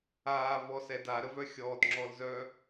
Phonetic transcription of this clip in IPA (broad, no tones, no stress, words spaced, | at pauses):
aːvɔsɛd aɾəvœ xʲɔːtŋ͡ǁɔlzœ